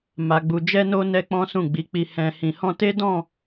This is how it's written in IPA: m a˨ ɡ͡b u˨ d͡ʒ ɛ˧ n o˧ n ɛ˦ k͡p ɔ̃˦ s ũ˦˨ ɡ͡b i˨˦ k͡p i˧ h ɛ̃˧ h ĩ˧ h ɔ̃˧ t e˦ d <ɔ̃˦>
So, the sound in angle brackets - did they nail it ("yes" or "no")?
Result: no